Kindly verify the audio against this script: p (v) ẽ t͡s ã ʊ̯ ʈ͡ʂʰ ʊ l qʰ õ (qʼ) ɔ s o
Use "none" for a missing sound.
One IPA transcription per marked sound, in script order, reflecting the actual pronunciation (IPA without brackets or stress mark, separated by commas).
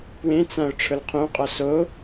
w, qʼ